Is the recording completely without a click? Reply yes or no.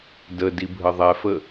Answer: yes